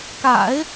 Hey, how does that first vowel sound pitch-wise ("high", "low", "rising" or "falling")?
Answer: low